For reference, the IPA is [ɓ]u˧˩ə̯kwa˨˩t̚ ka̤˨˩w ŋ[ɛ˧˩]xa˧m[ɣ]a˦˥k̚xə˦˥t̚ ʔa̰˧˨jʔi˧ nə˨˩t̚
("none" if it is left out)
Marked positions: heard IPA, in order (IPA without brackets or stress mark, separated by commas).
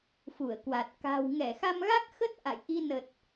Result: f, ɛ˧˩, ɣ